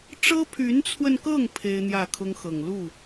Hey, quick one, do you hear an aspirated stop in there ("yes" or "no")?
yes